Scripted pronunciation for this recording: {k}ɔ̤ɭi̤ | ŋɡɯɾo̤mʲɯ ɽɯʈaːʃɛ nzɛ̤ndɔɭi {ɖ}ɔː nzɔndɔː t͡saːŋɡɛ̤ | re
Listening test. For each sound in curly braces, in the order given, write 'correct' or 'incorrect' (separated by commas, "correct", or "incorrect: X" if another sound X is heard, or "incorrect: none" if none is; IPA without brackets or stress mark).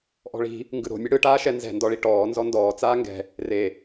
incorrect: ʔ, incorrect: ʈ